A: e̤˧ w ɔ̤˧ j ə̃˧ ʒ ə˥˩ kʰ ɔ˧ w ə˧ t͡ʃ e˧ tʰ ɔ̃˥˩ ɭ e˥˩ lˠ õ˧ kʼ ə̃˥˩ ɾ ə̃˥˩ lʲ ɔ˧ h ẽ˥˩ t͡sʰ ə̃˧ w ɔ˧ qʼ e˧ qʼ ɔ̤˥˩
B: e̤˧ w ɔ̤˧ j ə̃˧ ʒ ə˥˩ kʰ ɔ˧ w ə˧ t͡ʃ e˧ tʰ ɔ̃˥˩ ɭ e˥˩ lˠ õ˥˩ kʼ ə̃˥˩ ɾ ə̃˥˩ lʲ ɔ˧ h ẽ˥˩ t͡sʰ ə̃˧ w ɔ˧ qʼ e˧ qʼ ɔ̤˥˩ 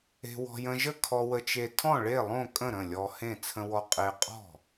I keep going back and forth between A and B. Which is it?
B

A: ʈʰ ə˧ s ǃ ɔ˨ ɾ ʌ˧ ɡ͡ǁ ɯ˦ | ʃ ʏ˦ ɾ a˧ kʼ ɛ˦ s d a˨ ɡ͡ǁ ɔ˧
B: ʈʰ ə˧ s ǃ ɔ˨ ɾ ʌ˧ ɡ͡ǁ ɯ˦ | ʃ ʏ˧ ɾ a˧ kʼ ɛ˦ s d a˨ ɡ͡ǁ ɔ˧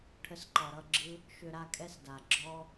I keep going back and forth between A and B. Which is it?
B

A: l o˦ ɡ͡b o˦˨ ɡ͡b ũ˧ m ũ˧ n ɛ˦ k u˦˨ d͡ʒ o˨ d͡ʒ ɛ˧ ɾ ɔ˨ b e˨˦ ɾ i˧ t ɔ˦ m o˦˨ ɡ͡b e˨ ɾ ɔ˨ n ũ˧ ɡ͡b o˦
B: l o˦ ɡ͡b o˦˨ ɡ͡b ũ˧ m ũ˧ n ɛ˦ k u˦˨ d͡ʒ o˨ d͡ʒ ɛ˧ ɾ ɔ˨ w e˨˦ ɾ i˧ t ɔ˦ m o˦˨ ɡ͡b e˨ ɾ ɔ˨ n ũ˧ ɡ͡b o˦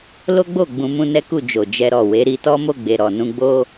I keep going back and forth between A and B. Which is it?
B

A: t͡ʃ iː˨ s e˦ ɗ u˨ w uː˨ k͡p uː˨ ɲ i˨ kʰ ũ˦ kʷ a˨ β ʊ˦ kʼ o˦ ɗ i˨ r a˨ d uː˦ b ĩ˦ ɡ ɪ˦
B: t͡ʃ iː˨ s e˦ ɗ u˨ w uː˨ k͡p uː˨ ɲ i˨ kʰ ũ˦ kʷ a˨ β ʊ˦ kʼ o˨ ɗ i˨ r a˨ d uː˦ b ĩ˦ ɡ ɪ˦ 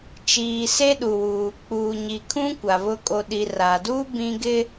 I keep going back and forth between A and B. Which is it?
B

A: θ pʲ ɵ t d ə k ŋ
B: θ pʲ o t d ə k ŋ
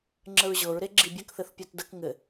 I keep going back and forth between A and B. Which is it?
B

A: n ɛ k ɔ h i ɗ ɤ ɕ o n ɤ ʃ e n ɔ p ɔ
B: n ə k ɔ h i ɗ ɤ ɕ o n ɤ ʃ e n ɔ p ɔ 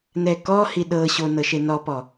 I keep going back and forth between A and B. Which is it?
A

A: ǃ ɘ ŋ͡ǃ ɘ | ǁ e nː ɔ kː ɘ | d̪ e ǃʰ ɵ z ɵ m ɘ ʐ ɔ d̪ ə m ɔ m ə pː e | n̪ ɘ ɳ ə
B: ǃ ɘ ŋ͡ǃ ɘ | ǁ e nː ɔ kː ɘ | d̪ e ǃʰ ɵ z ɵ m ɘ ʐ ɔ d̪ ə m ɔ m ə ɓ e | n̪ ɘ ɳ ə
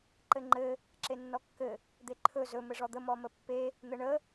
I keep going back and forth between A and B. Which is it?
A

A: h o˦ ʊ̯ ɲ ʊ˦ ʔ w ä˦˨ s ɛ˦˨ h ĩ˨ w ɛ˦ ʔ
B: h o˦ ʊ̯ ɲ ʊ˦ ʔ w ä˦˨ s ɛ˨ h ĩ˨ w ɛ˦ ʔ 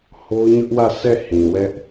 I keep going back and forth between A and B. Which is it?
A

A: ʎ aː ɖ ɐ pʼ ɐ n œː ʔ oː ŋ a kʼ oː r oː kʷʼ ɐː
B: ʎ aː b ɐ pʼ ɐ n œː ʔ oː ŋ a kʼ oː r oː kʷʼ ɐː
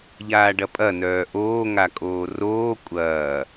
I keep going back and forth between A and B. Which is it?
A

